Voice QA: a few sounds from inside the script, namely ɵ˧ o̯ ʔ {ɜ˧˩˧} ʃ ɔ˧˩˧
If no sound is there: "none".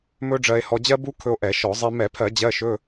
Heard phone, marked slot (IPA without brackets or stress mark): ɛ˧˩˧